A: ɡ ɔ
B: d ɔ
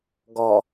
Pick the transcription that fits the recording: A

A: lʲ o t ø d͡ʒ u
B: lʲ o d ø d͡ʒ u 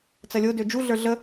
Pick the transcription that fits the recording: B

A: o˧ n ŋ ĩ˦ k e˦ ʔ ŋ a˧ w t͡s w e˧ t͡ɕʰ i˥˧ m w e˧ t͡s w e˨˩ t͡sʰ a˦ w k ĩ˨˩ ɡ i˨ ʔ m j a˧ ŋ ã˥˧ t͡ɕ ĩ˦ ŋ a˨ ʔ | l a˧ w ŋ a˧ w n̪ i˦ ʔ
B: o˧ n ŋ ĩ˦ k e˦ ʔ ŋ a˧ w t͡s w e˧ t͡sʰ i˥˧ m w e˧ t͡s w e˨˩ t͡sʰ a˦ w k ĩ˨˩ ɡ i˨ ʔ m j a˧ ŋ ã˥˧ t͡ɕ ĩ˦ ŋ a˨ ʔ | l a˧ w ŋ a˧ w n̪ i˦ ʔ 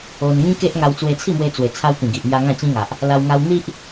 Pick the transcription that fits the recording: B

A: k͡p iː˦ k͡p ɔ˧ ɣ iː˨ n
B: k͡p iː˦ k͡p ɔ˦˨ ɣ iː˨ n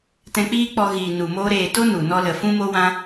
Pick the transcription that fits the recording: A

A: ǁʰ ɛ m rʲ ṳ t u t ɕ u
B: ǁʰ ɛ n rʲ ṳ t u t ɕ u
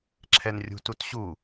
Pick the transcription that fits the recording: B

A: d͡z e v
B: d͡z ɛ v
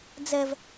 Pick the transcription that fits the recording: B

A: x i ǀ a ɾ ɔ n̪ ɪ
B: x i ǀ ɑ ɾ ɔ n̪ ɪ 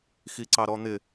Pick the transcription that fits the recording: B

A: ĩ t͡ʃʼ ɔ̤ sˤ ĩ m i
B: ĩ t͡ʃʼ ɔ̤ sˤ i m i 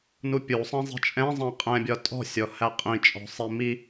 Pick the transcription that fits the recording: B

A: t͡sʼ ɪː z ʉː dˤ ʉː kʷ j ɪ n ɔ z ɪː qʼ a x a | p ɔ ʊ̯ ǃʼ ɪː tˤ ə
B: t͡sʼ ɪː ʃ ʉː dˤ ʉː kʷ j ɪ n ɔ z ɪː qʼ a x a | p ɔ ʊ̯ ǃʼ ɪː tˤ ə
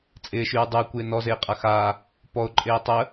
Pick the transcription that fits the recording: B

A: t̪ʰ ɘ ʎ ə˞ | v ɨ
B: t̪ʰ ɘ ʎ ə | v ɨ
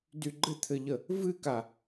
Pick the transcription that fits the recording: B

